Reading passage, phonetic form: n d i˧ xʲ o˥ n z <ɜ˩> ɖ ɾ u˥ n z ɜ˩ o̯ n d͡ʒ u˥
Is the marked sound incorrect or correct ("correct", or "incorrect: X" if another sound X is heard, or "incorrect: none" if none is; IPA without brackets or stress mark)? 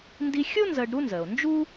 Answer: incorrect: ɜ˧